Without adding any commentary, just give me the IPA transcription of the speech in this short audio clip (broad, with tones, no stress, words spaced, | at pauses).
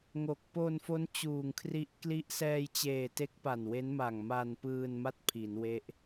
ŋo˨˩k̚ po˧nfo˦˥n t͡ɕuː˨˩ŋkʰri˦˥ʔkli˥˩ʔ sɛː˧jt͡ɕeː˨˩ te˦˥k̚pa˨˩nwe˦˥n ma˨˩ŋma˧npɯː˧nma˥˩t̚ pʰi˩˦nwe˦˥ʔ